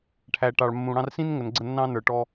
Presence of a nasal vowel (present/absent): present